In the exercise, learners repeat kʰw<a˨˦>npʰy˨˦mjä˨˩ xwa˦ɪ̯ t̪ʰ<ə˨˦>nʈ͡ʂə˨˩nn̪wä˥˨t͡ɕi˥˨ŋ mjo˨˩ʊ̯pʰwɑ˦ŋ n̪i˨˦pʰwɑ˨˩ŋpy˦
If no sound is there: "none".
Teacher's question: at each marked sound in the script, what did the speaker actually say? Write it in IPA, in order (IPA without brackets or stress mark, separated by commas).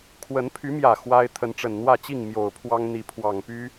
ə˨˦, ə˨˦